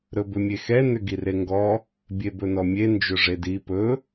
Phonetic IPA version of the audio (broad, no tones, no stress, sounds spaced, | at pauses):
ɾ ɵ b ʏ mʲ e x ɛ n ʏ ɡ i r e ŋ ɡ ɔ | bʲ e b ɵ n ɔ mʲ e n d͡ʒ ɵ ʐ e d i p ɵ